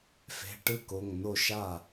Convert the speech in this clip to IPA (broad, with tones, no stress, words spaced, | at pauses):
fe̤˩˧˩ʈɯ˥˩ ko˩˧˩ŋno˥˩ʃa˥˩